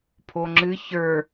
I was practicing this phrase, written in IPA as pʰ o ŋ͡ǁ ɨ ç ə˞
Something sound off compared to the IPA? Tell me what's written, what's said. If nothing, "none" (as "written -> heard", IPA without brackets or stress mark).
none